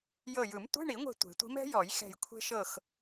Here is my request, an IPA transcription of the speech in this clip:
j ɤ˧˩ j ɯ˨˩˦ m tʷ e̤˧˥˧ ɳ i˨˩˦ ŋʷ e̤˧˩ tʷ e̤˨˩˦ tʷ i̤˧˥ m ɛ̤˧˥ j ɔ˨˩˦ j x ɛ̤˧˩ j kʷʰ e̤˧ ʃ ɤ˧˩ x

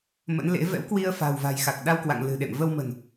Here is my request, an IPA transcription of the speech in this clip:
m ə̰˧˥ n l ḛ˧˥ v ɛ̰˧˥ w k w i˧ ə̯ f a̤˨˩ w v a̤˨˩ j x a˨˩ k̚ ɗ a˧ w k w a̰˧˨ ŋ l ɨ̤˨˩ ɗ ḛ˧˨ m v ə˧ w m ə̤˨˩ n

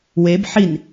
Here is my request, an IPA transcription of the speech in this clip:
w e b ħ i n

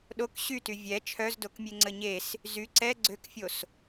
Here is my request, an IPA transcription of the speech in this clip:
ɗ o k ɕ y t y vʲ ɛ t͡ʃʰ œ z d o k mʲ e ŋ͡ǀ ə ɲ e s | z y ǀ ɛ ɡ͡ǀ ø k fʲ o s

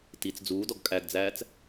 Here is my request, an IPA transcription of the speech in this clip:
t i t͡s d͡z uː d ɔ ɡ kʼ æ ɡ d͡z æː t͡s

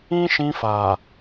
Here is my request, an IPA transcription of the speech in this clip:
ĩ˦ ʃ ĩ˧ f a˨

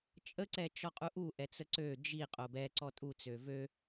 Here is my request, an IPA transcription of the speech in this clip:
t͡ʃʼ ə ǀ ɛ t͡ʃ ɔ qʼ u ʔ u ʔ ɛ t͡s ə ǀ ø d͡ʒ i qʼ o b ɛ ǀ ɔ tʼ u t͡s ø v ø

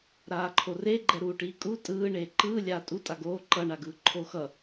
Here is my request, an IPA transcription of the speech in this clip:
ɾ aː ǃʰ o r e ɡ͡ǃ ɛ ɾ uː ʈ iː kʼ u tʼ ɯː ɳ eː ǃ ɯː lʲ aː tʼ u tʼ a ɡ oː ǃ ʌ ɳ a ɡ ɯː ǃʰ oː x ʌ

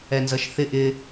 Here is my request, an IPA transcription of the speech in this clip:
ɛ n z ʌ ʃ θ ɪ ʔ ɪ

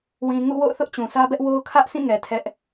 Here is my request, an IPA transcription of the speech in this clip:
w ĩ˨ ŋ ṵ˦˨ w o̰˦˨ ʊ̯ θ ʊ˦ ʔ t͡ɕ ũ˨ s ä˦ b ɛ˦ ʔ w o˦ ʊ̯ kʰ ä˦ ʔ s ĩ˦˨ ŋ ɛ˨ tʰ ɛ˦ ʔ

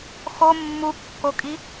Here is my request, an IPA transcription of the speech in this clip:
x o mː u kː o kʼ i

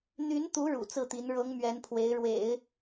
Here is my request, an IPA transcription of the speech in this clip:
n̪ y˧˥ n t̪ u˧˥ ɻ ṵ˨˩ t͡s ɹ̩˥˩ t̪ i˧˥ n ɻ ɤ˧˥ ŋ m ɥ ɛ˧˥ n pʰ w e˧˥ ɪ̯ ɻ w ḛ˨˩˦ ɪ̯

